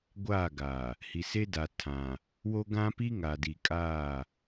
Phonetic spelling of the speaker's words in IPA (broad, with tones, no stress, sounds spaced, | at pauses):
ɡʷ aː˦˨ ɡ a˨ | h i˨ s e˦ d aː˨ tʰ ã˨ | w o˦ ɡ ã˦ p i˦ ŋ a˨ d i˨ kʼ aː˦˨